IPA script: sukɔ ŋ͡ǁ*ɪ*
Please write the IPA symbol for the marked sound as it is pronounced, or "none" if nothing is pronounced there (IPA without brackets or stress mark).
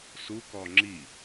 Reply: i